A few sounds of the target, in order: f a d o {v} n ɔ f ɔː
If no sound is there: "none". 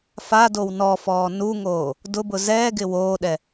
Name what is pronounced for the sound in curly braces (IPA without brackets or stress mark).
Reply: w